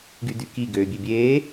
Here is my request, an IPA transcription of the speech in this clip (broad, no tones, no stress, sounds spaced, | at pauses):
ɡ y d y k i ɡ øː bʲ ø bʲ eː